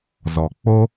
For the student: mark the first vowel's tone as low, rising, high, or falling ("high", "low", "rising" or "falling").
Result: low